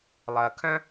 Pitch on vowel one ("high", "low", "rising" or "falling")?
low